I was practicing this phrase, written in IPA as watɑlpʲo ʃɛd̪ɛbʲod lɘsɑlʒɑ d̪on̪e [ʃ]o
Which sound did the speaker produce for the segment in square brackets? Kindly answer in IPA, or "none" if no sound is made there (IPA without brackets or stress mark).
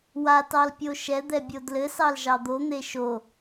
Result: ʃ